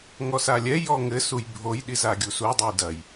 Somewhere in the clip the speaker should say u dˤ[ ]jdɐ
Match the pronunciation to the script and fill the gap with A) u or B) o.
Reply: B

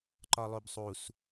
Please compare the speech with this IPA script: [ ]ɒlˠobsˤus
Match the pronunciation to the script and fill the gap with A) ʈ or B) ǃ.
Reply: B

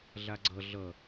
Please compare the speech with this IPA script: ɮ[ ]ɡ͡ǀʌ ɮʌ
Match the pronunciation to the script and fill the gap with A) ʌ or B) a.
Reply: B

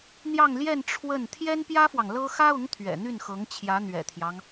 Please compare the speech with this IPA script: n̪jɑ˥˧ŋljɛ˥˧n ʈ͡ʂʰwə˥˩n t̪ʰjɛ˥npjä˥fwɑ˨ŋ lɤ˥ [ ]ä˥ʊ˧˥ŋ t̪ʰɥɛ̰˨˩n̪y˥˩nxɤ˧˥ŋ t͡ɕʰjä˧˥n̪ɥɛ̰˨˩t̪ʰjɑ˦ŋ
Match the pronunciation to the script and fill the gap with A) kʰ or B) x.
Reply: B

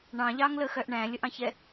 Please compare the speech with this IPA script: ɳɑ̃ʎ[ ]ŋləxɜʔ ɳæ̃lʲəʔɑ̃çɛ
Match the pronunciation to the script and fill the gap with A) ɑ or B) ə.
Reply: A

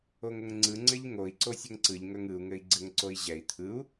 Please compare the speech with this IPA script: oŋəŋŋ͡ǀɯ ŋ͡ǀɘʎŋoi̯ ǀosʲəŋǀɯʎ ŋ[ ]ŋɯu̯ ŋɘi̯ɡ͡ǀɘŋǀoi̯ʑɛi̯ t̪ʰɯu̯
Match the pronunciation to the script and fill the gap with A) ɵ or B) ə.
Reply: A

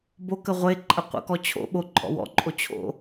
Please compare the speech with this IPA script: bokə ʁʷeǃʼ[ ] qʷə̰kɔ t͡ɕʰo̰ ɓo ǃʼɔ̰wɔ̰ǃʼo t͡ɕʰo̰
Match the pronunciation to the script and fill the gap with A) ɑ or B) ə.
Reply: B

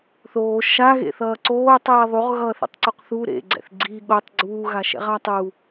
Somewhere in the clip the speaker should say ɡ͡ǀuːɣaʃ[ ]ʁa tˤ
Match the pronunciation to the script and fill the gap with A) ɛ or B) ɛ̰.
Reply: B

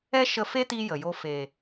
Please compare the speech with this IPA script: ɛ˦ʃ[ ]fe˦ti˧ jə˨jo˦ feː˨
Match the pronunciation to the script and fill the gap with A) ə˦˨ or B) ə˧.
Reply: B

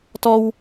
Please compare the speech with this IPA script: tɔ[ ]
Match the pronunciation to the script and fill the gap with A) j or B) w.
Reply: B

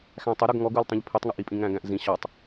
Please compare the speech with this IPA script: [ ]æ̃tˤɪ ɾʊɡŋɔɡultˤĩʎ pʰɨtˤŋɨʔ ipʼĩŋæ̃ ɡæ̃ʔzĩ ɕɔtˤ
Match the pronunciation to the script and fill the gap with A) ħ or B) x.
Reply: B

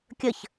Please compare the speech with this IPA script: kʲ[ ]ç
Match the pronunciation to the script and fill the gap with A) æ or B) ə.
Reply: B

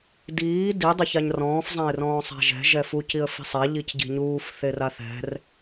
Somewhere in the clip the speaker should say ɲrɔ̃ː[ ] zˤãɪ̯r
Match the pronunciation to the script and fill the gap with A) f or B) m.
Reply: A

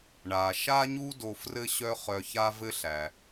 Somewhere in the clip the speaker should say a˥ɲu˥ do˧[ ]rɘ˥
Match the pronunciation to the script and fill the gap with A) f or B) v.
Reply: A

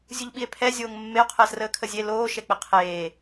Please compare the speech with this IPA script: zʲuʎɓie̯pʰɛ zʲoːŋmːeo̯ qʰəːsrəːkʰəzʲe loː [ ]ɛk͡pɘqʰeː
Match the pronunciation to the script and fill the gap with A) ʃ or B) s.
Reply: A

